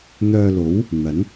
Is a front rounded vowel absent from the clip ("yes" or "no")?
no